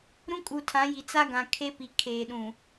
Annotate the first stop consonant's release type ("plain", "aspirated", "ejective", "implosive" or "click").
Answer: ejective